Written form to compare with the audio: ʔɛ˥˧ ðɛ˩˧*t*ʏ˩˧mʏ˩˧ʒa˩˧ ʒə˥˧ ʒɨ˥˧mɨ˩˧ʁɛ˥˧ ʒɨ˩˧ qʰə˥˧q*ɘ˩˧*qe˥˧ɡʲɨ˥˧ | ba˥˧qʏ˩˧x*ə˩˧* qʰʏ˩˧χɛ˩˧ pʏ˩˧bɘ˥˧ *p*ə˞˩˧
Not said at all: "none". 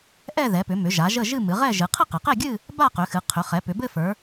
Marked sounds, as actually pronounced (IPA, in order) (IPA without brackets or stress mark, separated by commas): p, ɘ˩˧, ɨ˩˧, f